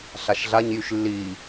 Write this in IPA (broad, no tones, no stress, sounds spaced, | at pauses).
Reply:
ɬ a ʃ ɮ a ɲ j y ʃ lː i